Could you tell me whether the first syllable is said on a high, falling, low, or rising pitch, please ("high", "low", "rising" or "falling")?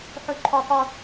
high